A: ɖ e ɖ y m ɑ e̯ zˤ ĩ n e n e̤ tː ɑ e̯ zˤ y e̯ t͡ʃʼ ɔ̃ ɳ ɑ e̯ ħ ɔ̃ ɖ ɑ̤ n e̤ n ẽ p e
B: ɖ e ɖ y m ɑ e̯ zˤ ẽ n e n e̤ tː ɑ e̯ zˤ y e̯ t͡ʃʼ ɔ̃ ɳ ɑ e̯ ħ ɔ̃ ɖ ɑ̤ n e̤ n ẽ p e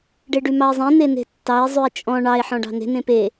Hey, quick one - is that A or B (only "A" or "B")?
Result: B